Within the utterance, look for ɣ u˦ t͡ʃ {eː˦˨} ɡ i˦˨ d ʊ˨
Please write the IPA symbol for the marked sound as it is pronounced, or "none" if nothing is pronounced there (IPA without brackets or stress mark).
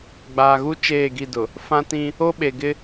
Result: eː˦˨